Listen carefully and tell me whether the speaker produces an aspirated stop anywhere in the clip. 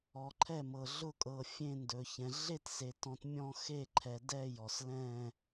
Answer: yes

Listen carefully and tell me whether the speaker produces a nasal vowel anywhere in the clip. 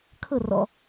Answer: no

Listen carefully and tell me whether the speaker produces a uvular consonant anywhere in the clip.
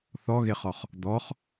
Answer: yes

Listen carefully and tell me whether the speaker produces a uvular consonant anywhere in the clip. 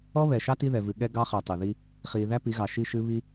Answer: yes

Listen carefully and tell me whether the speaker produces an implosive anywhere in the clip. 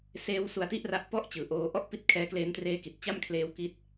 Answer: no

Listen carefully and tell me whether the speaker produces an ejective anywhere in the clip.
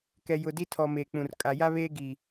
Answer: yes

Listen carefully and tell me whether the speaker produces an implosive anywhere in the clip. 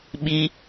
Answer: yes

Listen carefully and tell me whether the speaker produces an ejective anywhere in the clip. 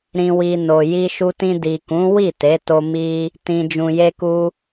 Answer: no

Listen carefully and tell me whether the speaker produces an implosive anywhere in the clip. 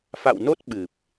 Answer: yes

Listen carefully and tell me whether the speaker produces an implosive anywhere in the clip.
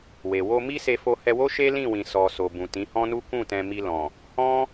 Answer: no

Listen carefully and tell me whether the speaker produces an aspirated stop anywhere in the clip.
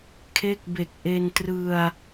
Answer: yes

